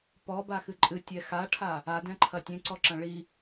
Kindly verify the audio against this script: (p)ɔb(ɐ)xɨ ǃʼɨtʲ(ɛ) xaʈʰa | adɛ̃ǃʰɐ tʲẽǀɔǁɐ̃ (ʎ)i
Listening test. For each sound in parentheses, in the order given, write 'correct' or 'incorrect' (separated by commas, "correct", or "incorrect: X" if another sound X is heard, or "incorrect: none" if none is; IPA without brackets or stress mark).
correct, incorrect: a, correct, incorrect: ɭ